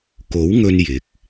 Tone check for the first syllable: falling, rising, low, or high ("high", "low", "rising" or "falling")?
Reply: rising